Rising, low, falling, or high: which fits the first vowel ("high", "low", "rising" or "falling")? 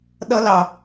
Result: high